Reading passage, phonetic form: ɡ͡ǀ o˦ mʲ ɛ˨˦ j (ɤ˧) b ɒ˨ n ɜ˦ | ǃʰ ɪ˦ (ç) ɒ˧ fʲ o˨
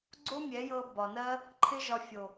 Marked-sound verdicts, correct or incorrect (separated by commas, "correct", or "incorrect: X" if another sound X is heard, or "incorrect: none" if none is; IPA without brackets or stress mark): correct, incorrect: ʒ